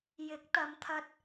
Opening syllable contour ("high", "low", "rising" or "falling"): rising